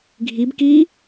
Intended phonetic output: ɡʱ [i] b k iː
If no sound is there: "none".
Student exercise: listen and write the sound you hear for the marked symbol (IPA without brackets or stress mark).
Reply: i